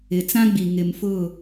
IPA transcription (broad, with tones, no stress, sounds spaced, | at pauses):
ɪ˨ t͡s ã˦ ɡ͡b i˨ ŋ ɪ˨ m f ʊ˦˨